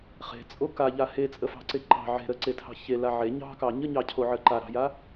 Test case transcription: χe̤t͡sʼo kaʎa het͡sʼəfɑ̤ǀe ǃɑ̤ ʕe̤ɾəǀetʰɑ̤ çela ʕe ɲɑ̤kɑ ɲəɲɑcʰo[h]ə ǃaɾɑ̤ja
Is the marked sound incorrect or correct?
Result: incorrect